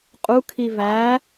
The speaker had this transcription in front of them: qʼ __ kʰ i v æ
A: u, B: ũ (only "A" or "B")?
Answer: A